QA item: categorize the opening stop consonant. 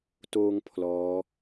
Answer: plain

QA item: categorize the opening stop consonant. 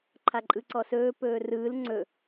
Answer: click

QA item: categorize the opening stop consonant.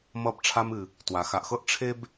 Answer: plain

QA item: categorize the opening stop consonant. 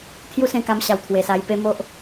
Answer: aspirated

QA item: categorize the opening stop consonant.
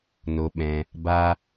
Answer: implosive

